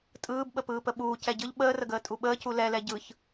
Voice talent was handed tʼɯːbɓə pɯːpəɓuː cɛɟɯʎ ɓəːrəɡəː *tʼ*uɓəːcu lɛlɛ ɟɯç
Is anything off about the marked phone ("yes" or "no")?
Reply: no